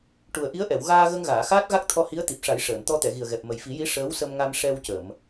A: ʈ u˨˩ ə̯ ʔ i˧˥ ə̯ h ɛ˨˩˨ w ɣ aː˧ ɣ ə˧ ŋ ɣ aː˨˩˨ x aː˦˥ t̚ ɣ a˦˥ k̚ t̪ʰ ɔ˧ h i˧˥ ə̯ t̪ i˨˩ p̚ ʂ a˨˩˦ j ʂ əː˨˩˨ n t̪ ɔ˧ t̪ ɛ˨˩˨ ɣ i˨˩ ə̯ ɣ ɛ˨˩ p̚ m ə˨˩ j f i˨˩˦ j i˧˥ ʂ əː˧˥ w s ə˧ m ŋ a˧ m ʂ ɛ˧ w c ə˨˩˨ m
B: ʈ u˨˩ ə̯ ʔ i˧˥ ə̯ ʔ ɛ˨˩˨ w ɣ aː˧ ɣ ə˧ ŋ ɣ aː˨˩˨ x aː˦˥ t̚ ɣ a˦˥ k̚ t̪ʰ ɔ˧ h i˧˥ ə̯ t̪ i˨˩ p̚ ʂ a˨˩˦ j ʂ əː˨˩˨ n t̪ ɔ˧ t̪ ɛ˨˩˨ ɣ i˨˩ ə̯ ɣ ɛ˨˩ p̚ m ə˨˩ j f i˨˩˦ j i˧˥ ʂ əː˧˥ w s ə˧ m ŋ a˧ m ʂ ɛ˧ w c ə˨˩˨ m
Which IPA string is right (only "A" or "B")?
B